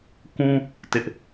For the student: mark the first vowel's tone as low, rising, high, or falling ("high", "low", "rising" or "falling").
high